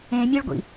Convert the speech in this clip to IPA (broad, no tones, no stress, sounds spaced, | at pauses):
ẽ mʲ e ɭ ɡʷ ḭ